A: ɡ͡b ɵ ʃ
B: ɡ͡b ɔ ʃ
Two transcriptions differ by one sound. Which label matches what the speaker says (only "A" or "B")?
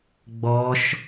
B